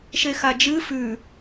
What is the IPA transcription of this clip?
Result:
ʃ e x a d͡ʒ ɨ f ʉ

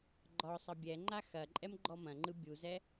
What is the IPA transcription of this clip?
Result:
ɡ͡ǃ ɒ sˤ ɐ bʲ ɛ ŋ͡ǃ a x ɐ ǃʼ ɛ m ɡ͡ǃ ɔ m ɐ̃ ŋ͡ǃ ɯ bʲ u z ɛ

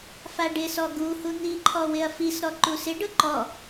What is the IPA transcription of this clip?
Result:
f a ɖ ɪ s ɔ ɡ u h u n̪ i ǃʰ ɔ w ɪ ɐ̯ f i s ɾ ɔ ǃ u s ɪ ɖ ʊ ǃ ɔ

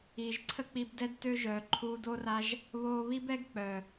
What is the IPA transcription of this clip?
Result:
iː˨ ʒ ǀʰ ə˦ k͡p i˧ b d ɛ˦ d t ø˦ ʒ œː˨ ǃʰ uː˧ d oː˦ r a˦ ʒ | β oː˧ β i˦ b ɛ˦ ɡ k͡p œ˨

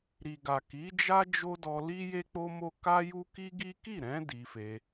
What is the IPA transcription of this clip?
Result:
ɾ i˨ ɡ a˨ k i˨˦ d͡ʒ a˦ d͡ʒ o˦ d ɔ˧ l i˦ j e˦ k͡p o˦ m o˦ k a˦ j u˦ k i˦ ɡ i˦ k i˦˨ ɾ ɛ̃˨˦ d i˧ f e˧

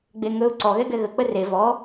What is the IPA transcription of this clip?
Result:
ɡ͡b e ŋ ɵ ʊ̯ ǀ ɔ ɣ ɛ ɡ ɛ ɣ ə k͡p ə r e v ɔ

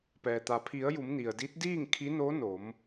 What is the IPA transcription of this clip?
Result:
p ɛː˩ t̪ a˩ pʰ i˩˧ ə̯ j u˩˧ m n i˩ ə̯ d i˧˥ t̚ d iː˥˨ ŋ kʰ i˧˥ n o˧˥ n o˩˧ m

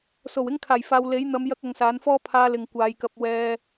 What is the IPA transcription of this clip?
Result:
s o˨˩ w ɪ˧ ŋ kʰ aː˨˩ j f aː˨ w l e˨˥ j n̪ ɐ˨˧ m j ɐ˧ k̚ ɐ˨˧ ŋ s aː˨˥ n f ɔː˥ pʰ aː˧ l ɪ˨ ŋ kʷ aː˨˧ j k ɐ˧ p̚ w ɛː˧

